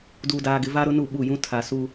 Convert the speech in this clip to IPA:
d uː˨ d aː˨ ɡ ɪ˨ v a˦ ɾ ʊ˦ n u˦˨ ɓ u˦˨ j ũ˦ tʰ a˨ s u˦

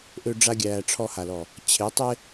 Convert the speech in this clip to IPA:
ʔ ø˦ ɖ͡ʐ a˦ ɡʲ æː˧ ʈ͡ʂʰ ɔ˧ h a˨ l ɔ˨ | t͡ɕʰ e˨˦ tˤ e˦

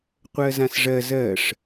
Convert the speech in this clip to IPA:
qʷ ɜ z ã s ʐ ɜ z ɜ ʂ

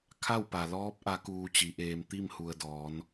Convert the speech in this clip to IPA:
kʰ a˥˨ w p a˩ l ɔː˧˥ p̚ ʔ a˧˥ k uː˧ t͡ɕ i˩˧ ʔ eː˧ m t̪ i˥˨ m h u˩ ə̯ d ɔː˩˧ n

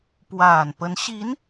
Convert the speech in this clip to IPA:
p w a˨˩ n p ə˧˥ n ɕ i˧˥ n

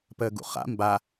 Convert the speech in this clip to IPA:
p əː ɡ ṵ χ a̰ m b a

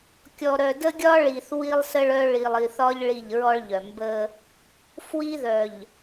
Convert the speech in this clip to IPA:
kʲ ɔ˨ ɾ œ˨ d ə˦ ɡʲ ɒ˦ ɭ i˨ θ w i˦ lˠ s ə˦ ɭ œ˦ ɭ i˨ lˠ i˨ θ ɒ˦ ʎ ɭ i˦˨ ʎ ɹ ɔ˦ ɭ ʎ œ˨ m b ə˦ | f w i˦ ð œ˨ ʎ

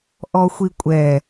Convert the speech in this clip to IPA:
ʔ ɔ xʷ i kʷʼ ɛ

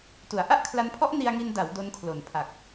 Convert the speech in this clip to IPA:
t u˩˦ a̯ ʔ a˥˩ ʔ kʰ l a˧ n pʰ ɔ˦˥ ʔ n i˧ a̯ ŋ i˧ n d a˩˦ w d o˦˥ n kʰ l o˨˩ n pʰ a˨˩ k̚

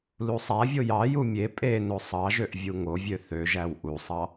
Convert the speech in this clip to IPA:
l u sˤ æ vʲ o j ɑ j u mʲ e pʼ e n o sˤ ɑ ʒ ø ʔ vʲ u ŋ o vʲ ø θ ø ʒ æ w ʔ u sˤ ɑ

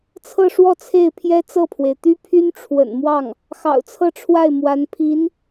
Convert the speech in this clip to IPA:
t͡sʰ ɤ˥˧ ʂ w ɔ˥˧ t͡sʰ e˥˩ ɪ̯ pʰ j ɛ˥ t͡s ɤ˥˩ pʰ w e˩ ɪ̯ t̪ y˥ pʰ y˥ n ʈ͡ʂʰ w ə̰˨˩ n m w ɑ˥˩ ŋ | x ɑ̰˨˩ ʊ̯ t͡sʰ ɤ˥˧ ʈ͡ʂʰ w a˥˩ ɪ̯ m w a˧˥ n pʰ i˧˥ n

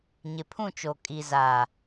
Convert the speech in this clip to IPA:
ɲ ɪ˨ pʰ ũ˦˨ t͡ʃ o˨ kʼ i˨ z a˨

